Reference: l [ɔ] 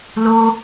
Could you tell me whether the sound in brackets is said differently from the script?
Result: yes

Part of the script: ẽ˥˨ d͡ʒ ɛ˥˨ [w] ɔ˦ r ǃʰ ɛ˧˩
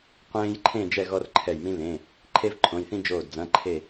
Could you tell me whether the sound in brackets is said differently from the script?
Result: yes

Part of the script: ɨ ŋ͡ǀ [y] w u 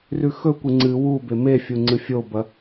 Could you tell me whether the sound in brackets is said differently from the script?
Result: yes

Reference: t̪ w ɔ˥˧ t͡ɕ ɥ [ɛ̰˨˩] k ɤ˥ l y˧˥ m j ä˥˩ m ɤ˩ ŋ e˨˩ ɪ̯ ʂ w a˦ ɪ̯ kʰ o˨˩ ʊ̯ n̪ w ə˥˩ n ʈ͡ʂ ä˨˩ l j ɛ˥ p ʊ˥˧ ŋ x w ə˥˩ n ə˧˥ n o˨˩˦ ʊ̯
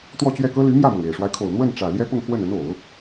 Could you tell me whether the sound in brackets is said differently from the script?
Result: yes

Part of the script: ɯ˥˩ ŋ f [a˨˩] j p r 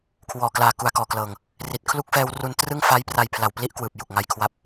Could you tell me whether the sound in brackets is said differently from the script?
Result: yes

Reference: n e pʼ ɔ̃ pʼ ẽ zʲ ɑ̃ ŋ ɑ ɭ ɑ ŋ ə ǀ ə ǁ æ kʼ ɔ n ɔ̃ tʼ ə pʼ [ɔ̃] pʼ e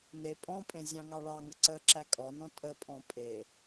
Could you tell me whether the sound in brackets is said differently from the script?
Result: no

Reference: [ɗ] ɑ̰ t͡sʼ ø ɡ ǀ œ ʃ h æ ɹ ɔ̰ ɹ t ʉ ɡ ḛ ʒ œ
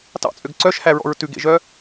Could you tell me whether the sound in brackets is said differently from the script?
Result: yes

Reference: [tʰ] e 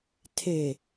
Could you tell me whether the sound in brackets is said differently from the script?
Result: no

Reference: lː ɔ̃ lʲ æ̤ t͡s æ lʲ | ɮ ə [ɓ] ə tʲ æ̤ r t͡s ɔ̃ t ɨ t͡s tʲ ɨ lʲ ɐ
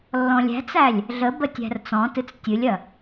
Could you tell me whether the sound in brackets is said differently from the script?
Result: yes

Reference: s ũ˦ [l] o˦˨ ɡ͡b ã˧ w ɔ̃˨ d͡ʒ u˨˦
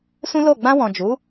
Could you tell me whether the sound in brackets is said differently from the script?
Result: no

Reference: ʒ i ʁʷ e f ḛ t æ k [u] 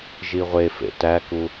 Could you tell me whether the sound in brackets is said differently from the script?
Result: no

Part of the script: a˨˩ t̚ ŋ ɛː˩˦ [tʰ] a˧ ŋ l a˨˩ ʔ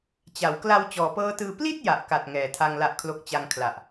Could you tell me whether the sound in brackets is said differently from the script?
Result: no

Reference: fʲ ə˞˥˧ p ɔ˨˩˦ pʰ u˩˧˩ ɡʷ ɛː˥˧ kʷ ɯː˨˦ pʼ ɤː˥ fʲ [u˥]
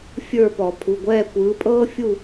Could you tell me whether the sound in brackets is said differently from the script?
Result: yes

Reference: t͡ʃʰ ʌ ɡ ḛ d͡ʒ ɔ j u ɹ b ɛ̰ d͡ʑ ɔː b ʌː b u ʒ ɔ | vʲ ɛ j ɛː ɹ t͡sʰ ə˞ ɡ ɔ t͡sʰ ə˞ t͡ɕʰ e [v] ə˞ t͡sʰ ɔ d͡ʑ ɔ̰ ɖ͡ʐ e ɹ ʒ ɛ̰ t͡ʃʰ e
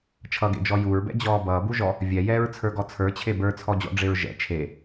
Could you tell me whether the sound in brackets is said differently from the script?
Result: yes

